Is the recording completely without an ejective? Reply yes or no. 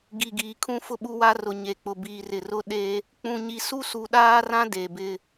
yes